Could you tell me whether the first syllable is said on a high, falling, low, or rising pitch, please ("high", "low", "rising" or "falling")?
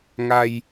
low